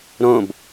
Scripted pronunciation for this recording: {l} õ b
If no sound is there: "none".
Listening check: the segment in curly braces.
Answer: ɾ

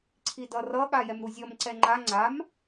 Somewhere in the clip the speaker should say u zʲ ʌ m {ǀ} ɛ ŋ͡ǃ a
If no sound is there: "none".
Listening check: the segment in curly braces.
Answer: ǀ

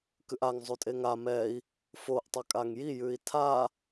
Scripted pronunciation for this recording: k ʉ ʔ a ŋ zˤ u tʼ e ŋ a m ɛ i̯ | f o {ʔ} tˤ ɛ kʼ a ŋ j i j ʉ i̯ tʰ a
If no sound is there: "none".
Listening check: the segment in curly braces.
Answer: ʔ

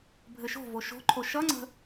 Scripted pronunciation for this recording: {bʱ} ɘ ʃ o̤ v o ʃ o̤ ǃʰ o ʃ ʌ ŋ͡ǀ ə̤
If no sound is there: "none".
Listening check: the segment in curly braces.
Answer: bʱ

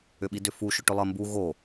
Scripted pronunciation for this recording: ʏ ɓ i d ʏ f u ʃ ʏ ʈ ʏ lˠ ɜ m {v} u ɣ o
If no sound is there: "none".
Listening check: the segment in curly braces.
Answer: b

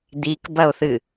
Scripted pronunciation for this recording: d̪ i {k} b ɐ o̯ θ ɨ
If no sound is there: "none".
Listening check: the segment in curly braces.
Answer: k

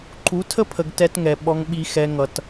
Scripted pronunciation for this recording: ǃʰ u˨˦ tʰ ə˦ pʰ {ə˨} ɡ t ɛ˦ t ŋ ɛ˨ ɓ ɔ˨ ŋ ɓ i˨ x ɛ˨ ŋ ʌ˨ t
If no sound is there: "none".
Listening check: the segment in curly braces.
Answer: ə˨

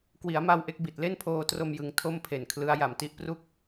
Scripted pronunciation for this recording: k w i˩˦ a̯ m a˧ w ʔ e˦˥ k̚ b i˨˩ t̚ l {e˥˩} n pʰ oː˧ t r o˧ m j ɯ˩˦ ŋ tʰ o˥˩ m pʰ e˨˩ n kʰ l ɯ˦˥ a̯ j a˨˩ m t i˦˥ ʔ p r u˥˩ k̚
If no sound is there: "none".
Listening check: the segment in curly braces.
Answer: e˥˩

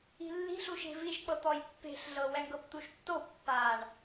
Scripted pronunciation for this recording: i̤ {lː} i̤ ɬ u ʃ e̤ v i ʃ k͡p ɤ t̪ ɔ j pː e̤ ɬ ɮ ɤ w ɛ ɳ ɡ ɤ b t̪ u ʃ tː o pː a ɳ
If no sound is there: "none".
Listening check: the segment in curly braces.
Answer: lː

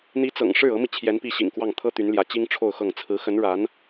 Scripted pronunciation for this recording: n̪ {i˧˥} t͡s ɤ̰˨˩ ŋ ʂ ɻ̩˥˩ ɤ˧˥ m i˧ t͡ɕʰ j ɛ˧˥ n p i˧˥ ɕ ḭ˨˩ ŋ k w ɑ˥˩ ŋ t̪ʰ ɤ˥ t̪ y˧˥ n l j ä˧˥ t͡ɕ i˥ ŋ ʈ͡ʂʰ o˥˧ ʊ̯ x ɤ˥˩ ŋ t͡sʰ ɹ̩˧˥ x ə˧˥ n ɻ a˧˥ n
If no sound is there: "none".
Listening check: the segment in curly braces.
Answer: i˧˥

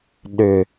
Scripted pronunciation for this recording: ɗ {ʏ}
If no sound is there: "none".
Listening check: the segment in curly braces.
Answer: ʏ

